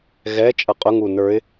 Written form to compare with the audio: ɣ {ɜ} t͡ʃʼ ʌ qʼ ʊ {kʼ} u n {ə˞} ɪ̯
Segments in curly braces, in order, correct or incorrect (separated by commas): incorrect, incorrect, correct